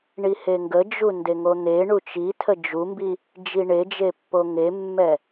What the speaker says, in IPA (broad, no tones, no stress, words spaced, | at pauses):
ɳiheŋɡə d͡ʒundeŋon̪e ɳut͡ʃitʰə d͡ʒumbi | d͡ʒiɳed͡ʒepːo ŋemːɛ